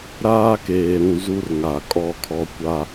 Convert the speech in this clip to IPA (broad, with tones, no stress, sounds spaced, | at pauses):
ɾ aː˦ k eː˨ ɾ ũ˨ z u˦ r ŋ a˨ kʼ ɔ˦ kʰ ɔ˦ kʷ a˦